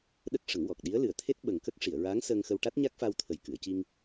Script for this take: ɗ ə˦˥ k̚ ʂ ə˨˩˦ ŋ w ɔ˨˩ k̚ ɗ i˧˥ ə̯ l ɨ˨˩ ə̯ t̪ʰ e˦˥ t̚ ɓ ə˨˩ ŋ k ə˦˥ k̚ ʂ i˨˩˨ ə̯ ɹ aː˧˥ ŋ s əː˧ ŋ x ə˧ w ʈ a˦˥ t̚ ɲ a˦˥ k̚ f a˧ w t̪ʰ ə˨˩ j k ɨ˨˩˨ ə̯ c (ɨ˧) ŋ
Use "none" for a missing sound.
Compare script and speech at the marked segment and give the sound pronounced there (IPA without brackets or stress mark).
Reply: i˧